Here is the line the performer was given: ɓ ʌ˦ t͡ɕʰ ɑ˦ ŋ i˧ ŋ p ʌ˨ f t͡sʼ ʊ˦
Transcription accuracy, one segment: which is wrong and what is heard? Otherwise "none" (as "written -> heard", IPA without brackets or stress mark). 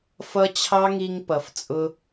ɓ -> f